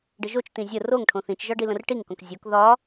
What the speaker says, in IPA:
ɖ ə ʒ o t͡ʃ t ĩ zʲ ə r o ŋ ʈʰ õ θ ĩ t͡ʃ ʒ ɒ ɖ i l ə̃ r ʈ i ŋ k õ k zʲ o k ð ɒ

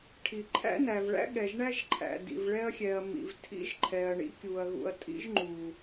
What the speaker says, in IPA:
ʈʰ i˨ ǃʰ æ̰˦ n æ˨ v ɭ æ̰˦ ɠ ɛ˨ ʒ ɳ æ˦ ʒ ǃʰ æ̰˨ d ḭ˨ v ɭ ɛ˦ ɐ̯ xʲ ɛ˨ ɐ̯ m ḭ˨ v tʰ ḭ˦ ʒ ǃʰ ɛ˨ ɐ̯ ɳ ḭ˦ kʲ u˨ ɐ̯ ɣ ṵ˨ ɐ̯ tʼ ḭ˦ ʒ ŋ͡ǃ u˨

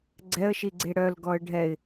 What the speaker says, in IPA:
ɡ͡ǀ ɛ ə̯ ʃ i ɡ͡ǀ e ɽ œ l ɡ ɔ ə̯ ɖʱ ɛ ɪ̯

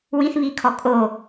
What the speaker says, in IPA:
w ĩ θ β i kʰ ɔ kʼ o

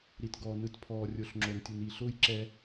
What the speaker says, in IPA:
ɾ i˨ t ɡ ɔː˨ n ɯ˨˦ t pʰ ɔː˨ rʲ o˨ ɬ ŋ͡ǁ o˨ n tʲ u˨ n i˨ ɬ ʊː˦ j ǁ ɛ˦

